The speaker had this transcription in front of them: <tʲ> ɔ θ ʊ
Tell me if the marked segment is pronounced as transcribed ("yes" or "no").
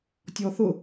yes